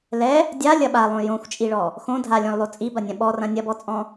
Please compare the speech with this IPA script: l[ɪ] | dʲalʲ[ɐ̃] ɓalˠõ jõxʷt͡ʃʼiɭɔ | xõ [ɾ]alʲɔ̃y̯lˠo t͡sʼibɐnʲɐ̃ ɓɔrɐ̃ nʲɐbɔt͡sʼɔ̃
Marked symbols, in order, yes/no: no, no, no

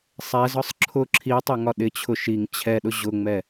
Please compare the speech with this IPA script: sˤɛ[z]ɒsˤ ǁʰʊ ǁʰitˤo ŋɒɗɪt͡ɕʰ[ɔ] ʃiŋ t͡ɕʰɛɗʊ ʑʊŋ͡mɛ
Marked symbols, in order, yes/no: yes, no

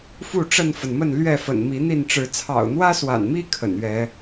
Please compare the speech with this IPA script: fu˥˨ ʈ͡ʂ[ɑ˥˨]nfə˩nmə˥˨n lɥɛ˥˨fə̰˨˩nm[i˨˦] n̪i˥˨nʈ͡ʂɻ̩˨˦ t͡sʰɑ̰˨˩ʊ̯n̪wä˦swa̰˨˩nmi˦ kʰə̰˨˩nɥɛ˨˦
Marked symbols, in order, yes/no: no, yes

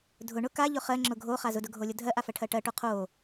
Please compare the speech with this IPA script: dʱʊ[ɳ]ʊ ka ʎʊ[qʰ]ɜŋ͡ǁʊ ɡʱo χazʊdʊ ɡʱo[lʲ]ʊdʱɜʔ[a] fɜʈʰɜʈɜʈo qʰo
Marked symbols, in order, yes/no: yes, no, yes, yes

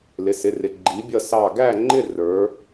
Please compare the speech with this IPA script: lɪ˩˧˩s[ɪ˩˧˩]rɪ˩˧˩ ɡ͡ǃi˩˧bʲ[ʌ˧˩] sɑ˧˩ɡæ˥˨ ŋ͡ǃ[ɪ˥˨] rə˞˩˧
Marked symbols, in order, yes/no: yes, yes, yes

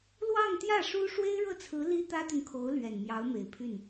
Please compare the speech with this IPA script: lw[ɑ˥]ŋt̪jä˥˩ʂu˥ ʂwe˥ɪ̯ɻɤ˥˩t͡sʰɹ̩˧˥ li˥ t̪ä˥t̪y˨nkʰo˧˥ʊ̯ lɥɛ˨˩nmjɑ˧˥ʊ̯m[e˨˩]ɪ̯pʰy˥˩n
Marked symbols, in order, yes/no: no, yes

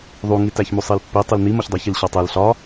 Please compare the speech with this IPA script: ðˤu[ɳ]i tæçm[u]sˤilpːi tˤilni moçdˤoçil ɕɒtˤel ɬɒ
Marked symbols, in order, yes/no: no, yes

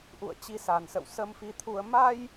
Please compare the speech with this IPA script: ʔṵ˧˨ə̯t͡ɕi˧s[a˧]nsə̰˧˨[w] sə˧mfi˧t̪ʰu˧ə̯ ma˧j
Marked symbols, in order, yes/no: no, yes

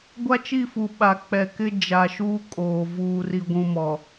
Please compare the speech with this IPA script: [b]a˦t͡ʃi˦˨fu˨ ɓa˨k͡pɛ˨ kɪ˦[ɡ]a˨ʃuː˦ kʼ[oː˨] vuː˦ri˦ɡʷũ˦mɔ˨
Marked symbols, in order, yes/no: no, no, yes

